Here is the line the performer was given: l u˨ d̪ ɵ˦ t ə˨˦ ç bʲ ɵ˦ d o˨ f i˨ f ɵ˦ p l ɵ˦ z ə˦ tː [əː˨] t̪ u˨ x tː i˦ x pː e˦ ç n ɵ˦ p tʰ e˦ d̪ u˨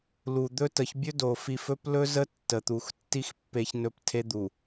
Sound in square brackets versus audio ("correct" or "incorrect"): incorrect